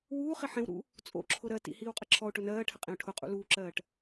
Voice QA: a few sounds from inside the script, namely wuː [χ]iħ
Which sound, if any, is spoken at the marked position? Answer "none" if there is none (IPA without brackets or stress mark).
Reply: χ